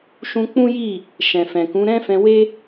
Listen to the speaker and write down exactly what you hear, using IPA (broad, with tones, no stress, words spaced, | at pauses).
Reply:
ʃũ˧k͡pũ˦ji˦˨ | ʃɛ̃˨fɛ̃˨kũ˨˦ ɾɛ̃˦fɛ̃˧we˦